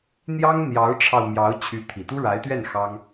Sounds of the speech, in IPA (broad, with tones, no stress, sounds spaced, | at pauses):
n̪ j ɑ˥ ŋ n̪ j ɑ˧˥ ʊ̯ ʈ͡ʂʰ ɑ˧ ʊ̯ m j ɑ˧˥ ʊ̯ t͡ɕʰ y˧˥ t̪ʰ i˨˩ t̪ u˥ ɻ a˧˥ ɪ̯ t̪ ɥ ɛ˥˩ n x ɑ˥ ŋ